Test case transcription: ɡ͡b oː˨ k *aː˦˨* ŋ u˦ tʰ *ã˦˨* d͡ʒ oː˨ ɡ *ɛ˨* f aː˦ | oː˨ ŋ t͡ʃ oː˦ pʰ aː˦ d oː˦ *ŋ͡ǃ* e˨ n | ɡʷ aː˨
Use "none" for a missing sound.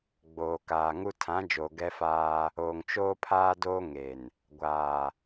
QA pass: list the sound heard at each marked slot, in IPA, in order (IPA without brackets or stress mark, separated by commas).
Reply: aː˨, ã˨˦, ɛ˦, ŋ